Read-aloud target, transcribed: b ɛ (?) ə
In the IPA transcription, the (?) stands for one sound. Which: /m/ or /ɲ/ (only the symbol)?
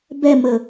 m